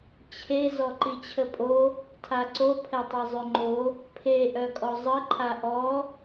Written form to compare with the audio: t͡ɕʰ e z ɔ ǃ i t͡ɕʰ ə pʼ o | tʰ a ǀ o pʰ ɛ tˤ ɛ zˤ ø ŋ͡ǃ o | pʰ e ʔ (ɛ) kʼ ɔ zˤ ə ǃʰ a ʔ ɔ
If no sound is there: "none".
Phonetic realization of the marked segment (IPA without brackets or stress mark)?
œ